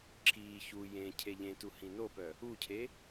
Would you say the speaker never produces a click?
no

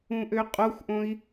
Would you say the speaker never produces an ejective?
no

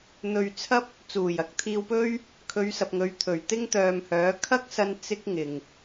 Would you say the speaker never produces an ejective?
yes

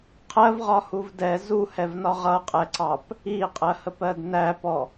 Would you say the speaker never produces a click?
no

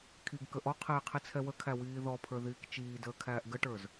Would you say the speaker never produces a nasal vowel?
yes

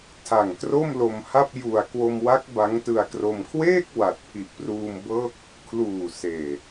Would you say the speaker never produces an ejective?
yes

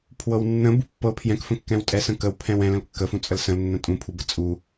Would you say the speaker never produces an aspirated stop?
no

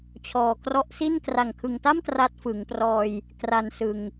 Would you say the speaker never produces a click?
yes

